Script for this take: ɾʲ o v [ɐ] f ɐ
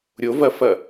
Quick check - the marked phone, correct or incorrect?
correct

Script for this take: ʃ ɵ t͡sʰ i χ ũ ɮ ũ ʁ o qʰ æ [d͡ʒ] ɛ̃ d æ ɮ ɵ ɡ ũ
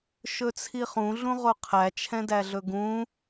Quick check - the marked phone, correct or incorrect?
incorrect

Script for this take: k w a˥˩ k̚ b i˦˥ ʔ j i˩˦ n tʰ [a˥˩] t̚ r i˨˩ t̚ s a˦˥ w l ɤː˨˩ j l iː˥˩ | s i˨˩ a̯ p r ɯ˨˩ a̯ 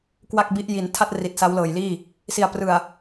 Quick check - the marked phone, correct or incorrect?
correct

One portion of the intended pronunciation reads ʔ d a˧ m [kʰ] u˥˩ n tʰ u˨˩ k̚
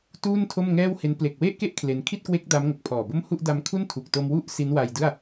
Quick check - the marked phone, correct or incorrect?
correct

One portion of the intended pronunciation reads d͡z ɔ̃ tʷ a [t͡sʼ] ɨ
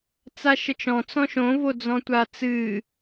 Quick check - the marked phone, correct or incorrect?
incorrect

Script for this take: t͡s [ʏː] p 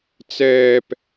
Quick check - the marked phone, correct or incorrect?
incorrect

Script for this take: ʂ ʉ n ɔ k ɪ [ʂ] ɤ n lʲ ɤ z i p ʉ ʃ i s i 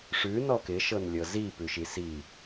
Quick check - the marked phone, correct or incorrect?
incorrect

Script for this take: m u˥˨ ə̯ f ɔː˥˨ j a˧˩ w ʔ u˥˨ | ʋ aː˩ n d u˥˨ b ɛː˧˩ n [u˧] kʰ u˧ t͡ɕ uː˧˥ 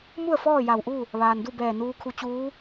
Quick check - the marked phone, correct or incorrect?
incorrect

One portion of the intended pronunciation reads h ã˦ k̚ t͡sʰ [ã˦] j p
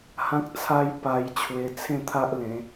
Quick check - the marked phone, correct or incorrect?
incorrect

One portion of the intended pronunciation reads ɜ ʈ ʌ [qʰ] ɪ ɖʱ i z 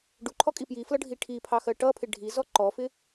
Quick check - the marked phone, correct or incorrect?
incorrect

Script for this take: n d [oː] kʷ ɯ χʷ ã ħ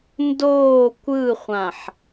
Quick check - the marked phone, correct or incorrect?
correct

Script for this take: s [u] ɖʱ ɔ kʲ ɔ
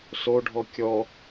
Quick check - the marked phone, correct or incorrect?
incorrect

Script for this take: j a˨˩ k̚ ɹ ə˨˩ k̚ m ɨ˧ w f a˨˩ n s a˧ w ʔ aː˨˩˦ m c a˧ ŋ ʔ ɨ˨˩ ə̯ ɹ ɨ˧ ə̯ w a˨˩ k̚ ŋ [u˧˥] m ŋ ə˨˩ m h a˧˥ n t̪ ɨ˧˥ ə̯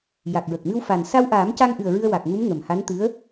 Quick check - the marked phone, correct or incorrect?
correct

